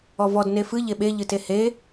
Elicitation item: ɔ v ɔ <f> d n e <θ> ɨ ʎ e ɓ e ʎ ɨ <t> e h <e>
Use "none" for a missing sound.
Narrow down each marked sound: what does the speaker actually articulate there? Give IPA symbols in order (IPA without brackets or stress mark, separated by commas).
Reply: none, f, t, e